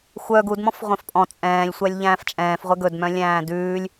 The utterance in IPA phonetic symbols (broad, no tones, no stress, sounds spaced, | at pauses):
xʷ œ ɡ u d m ɔ̃ f ʁʷ œ̃ f pʼ ɔ̃ t͡sʼ ɛ̃ː lʲ sʷ æ lʲ ʎ æ̃ː f t͡ʃʼ ɛ̃ː f ʁʷ ɛ ɡ ɵ d m œ̃ lʲ æ̃ː d ʉː lʲ